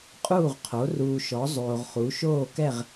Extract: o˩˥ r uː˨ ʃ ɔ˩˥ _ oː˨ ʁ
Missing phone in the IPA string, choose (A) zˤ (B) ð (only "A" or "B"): A